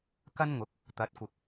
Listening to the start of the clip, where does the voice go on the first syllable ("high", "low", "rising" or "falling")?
high